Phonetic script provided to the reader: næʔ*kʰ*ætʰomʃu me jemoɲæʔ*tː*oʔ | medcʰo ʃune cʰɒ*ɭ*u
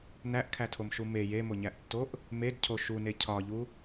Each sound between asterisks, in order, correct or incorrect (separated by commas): correct, correct, incorrect